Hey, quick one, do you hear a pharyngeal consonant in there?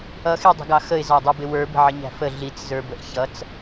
yes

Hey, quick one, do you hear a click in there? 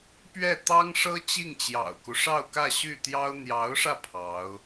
no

